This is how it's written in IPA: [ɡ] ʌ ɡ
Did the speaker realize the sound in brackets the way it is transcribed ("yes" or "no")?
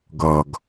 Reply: yes